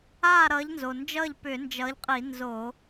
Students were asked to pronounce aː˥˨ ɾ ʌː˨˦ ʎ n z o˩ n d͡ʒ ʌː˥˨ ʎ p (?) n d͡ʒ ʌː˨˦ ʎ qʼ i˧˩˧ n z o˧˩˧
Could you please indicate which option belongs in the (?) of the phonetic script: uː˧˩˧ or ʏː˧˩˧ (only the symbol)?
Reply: ʏː˧˩˧